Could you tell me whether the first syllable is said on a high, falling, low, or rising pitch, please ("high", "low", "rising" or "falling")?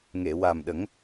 low